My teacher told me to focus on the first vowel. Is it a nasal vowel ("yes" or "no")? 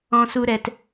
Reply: yes